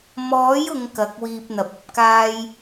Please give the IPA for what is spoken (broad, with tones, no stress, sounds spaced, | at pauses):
m ɔː˨˥ j ʊ˨ ŋ k ɐ˨˥ k̚ w iː˧ p̚ n̪ ɐ˨ p̚ ɐ˨ p̚ k aː˥ j